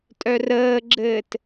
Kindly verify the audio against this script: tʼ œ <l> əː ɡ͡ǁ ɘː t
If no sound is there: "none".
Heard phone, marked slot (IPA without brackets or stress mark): r